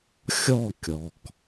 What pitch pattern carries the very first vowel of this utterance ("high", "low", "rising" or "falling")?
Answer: falling